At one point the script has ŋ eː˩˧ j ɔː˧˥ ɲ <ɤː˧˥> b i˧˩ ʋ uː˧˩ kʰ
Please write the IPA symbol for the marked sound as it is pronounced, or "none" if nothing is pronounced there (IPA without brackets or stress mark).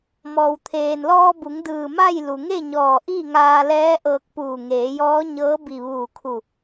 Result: ɤː˧˥